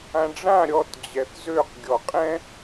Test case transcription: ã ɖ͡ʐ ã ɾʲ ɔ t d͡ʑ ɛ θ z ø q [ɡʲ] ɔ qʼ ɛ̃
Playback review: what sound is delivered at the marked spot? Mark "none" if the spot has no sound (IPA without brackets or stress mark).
ɡʲ